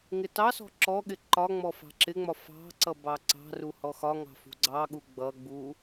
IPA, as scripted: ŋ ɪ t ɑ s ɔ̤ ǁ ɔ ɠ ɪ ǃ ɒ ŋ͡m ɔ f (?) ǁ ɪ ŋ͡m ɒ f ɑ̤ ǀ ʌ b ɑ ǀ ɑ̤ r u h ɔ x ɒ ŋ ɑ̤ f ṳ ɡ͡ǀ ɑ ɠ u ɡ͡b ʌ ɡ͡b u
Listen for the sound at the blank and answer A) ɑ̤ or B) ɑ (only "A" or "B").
A